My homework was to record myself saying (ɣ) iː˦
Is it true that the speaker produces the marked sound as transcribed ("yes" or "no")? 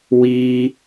no